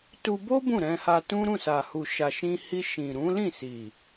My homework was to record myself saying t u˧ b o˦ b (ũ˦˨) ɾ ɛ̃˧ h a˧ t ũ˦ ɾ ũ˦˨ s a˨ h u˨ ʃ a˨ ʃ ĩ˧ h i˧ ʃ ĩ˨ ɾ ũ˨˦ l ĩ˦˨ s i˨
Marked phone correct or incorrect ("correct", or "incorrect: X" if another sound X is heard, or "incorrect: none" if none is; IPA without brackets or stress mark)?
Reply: correct